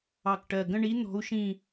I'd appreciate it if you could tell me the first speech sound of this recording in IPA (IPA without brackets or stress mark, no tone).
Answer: ɑ